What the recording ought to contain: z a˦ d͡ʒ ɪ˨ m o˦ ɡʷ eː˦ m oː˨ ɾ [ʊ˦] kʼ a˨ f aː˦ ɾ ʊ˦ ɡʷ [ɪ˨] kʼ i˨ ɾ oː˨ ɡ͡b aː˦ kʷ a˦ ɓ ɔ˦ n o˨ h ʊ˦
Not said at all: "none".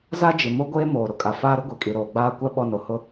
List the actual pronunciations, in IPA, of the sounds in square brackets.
ʊ˨, i˨

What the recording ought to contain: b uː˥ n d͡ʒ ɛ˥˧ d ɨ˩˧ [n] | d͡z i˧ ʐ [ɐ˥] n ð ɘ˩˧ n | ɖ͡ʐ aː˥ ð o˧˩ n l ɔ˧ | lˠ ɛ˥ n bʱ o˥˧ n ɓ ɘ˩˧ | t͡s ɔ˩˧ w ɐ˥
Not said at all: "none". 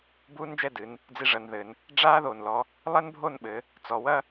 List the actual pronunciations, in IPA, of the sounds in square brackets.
n, ɐ˩˧

